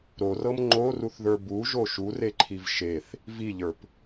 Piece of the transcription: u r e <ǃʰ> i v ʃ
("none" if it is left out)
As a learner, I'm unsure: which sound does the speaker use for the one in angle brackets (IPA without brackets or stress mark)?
ǃʰ